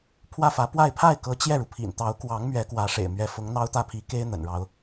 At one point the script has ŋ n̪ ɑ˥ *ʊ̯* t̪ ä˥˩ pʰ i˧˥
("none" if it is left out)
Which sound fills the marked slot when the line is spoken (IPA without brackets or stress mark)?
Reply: ʊ̯